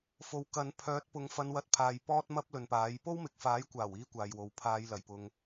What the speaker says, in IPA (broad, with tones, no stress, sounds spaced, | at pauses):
f o˨˧ w k ɐ˨˧ n pʰ œː˨˥ t̚ p ʊ˨ ŋ f ɐ˨˧ n w ɐ˨˥ t̚ pʰ aː˨ j p ɔː˥ t̚ m ɐ˥ p̚ l ɵ˨ n p aː˨˥ j p o˥ w m ɪ˨ k̚ f aː˨˥ j kʷ aː˨˩ w iː˥ kʷ aː˨ j w o˨ w pʰ aː˨˧ j l ɐ˨˩ j p ʊ˨ ŋ